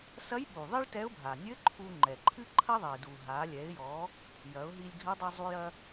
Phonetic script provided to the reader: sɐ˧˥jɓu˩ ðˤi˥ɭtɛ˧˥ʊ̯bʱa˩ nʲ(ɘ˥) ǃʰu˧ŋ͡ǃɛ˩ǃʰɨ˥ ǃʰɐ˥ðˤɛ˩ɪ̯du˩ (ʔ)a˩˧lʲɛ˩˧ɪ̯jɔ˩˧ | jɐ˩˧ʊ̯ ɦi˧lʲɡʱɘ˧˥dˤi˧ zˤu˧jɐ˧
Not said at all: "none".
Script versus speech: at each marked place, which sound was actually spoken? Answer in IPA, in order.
ɘ˧˥, ɦ

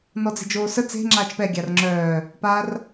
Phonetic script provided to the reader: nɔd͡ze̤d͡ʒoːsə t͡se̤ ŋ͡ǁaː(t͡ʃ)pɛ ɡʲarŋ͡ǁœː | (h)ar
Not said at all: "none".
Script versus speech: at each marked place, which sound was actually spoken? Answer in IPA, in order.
t͡ʃ, p

